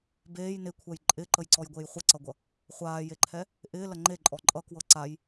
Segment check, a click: present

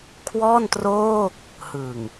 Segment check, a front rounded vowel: absent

